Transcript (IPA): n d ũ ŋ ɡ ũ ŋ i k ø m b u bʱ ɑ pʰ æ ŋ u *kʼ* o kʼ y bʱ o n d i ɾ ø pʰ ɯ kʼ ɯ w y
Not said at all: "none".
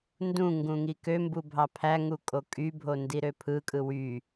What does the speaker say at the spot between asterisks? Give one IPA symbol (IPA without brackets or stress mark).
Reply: kʼ